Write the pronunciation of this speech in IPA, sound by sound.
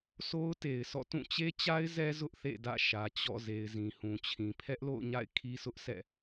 sʰ o˦ ʊ̯ t e˨ ɪ̯ sʰ ɔ̰˦˨ t ũ˦˨ t͡ɕ e˦ t͡ɕ a˦ ɪ̯ z ɛ˦ z ʊ˦ ʔ θ ḛ˦˨ d ä̰˦˨ ʃ ä˨ t͡ɕ ɔ̰˦˨ z e˨ ɪ̯ z ĩ˨ h ũ˨ t͡ɕʰ ĩ˨ pʰ ɛ˦ ʔ l o̰˦˨ ʊ̯ ɲ a̰˦˨ ɪ̯ kʰ i˦ sʰ ʊ˦ ʔ sʰ ɛ̰˦˨

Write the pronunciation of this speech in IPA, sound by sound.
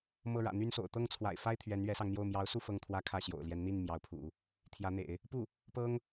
m ɤ˥˩ ɻ ä̰˨˩ n̪ y˥ n s o̰˨˩ ʊ̯ t̪ ɤ˥˩ ŋ t͡sʰ w a̰˨˩ ɪ̯ f a˥ ɪ̯ t̪ʰ ɥ ɛ˧˥ n ɥ ɛ˧˥ s ɑ˧ ŋ n̪ j o˥˩ ʊ̯ m j ɑ˧˥ ʊ̯ s u˥˧ f ɤ˥˩ ŋ t̪ʰ w ä˥ kʰ ä˥˩ ɕ j o̰˨˩ ʊ̯ l j ɛ˧˥ n n̪ i˥˩ n m j ɑ˧˥ ʊ̯ pʰ ṵ˨˩˦ | t̪ʰ j ä˧˥ n̪ ḛ˨˩˦ ɪ̯ | p u˥˩ | p ɤ˥ ŋ

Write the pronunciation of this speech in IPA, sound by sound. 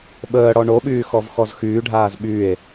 ɓ əː ɽ ɔ ɳ o ɓ yː x ɔ v x ɔ z x yː ɖʱ aː z ɓ y e̯

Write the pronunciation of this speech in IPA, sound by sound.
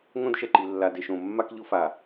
ŋ õ˦ d ʃ ɛ˨ ǃ i˨ lː a˨ d e˨ ʃ õ˨ mː a˦ k ʎ ʊ˦ f a˨

